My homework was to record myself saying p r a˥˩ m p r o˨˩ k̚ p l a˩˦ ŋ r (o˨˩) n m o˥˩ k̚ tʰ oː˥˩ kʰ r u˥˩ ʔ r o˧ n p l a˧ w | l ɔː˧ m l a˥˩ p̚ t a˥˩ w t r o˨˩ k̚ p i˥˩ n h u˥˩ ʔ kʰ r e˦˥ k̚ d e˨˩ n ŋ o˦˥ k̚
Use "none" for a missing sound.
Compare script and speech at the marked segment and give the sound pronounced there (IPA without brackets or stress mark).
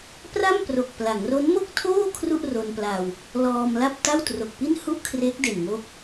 o˦˥